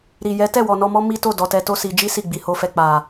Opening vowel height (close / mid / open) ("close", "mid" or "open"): close